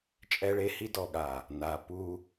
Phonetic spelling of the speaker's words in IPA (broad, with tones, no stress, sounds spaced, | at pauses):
t͡ʃʼ ɛ˦ ɭ e˦ h i˦ d ɔ˨ ɠ a˨ | n a˨ p u˦